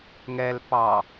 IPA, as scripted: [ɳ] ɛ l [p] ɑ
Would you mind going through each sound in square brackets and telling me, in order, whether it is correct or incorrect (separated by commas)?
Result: incorrect, correct